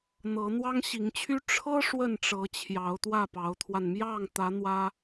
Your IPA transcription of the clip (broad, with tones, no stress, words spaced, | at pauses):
n̪ɤ˧˥n̪wɑ˥ŋɕi˧˥ŋt͡ɕʰy˥ ʈ͡ʂʰɤ˥ ʂwə˥˩nʈ͡ʂɤ˧˥ t͡ɕʰjɑ˧˥ʊ̯t̪wä˥˩pɑ˧˥ʊ̯t̪ʰwa˧n mjɑ˥˩ŋt̪ä˧˥ n̪wä˥